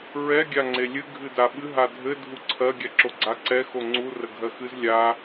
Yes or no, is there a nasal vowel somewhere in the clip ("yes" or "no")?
no